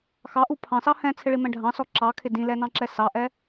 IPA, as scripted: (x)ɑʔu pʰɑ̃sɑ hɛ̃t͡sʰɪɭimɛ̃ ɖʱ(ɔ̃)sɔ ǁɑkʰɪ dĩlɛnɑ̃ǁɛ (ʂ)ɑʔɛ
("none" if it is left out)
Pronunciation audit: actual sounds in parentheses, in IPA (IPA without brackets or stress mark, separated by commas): x, ɑ̃, s